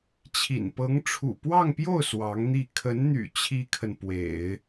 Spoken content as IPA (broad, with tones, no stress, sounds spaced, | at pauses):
t͡ɕʰ ḭ˨˩ n p ɤ˧˥ ŋ ʈ͡ʂʰ ṵ˨˩ p w ɑ˥˧ ŋ p j o˥˩ ʊ̯ s w ɑ˧˥ ŋ n̪ i˥˩ kʰ ə˧˥ n n̪ y̰˨˩ t͡ɕʰ i˥ kʰ ə˨ n p w ḛ˨˩˦ ɪ̯